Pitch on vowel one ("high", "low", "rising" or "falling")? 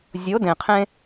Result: rising